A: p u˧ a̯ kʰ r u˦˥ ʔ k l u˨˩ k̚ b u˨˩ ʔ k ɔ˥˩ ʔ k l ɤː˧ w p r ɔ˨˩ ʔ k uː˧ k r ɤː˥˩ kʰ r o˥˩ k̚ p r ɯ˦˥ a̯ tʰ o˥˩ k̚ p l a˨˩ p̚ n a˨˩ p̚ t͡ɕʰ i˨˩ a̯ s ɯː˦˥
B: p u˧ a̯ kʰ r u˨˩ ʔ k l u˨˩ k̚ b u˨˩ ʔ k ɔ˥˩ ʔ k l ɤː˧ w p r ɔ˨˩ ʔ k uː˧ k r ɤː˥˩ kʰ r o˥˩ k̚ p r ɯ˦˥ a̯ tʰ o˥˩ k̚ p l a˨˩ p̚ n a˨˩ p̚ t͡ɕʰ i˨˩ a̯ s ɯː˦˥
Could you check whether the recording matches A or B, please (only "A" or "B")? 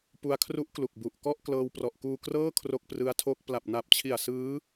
A